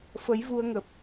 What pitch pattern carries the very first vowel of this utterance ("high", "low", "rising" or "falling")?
rising